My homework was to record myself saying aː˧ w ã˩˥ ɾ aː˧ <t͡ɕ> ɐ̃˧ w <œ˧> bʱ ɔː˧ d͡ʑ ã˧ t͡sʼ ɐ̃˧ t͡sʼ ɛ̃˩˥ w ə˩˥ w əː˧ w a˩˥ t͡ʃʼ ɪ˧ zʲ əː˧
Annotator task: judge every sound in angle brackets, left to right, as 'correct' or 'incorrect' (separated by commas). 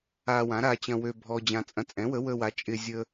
correct, incorrect